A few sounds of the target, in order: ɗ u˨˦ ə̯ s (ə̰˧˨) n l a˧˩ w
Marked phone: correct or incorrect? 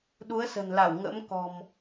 incorrect